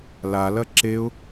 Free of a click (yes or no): no